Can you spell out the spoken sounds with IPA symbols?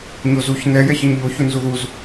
ɲ o z u ç n ɛ j ɛ ç a ɲ ʎ o ç u n z u ð u z

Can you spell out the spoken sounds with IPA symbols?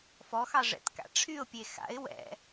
f ɔ x ɑ ʐ ɛ̰ t k a̰ ʈ͡ʂʰ y ʊ̯ pʲ e x a̰ ɪ̯ w ɛ̰

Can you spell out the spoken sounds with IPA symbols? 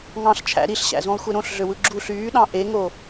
ŋ ɑ̃ ɬ t͡ʃʰ æ̰ ɾ i ɬ ɕ æ̰ z ũ lˠ xʷ e ɾ õ ɬ ɮ ø w ɯ ɡ͡ǁ u ɬ yː ɗ ɑ̃ ʔ e ŋ o

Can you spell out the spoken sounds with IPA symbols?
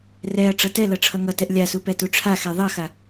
r ɛ ɐ̯ ʈ͡ʂ ʌ t ɛ l ʌ ʈ͡ʂʰ ʌ ŋ ʌ t ɛ ʔ lʲ a s u p ɛ t u ʈ͡ʂʰ a x ɛ ðˤ ʌ x a

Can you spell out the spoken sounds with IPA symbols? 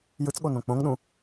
j ɯ t͡s ɠ o n õ k͡p õ ŋ ɗ ũ

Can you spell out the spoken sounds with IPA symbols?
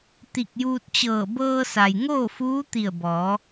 t̪ i˧˩ k̚ j uː˧ t̚ t͡ɕ ɤː˧˩ b ɤː˧ s a˩ j ŋ oː˥˨ f uː˧˥ t̪ i˧˩ ə̯ b ɔː˩˧

